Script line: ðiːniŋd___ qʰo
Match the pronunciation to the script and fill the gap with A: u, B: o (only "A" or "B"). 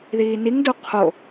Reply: A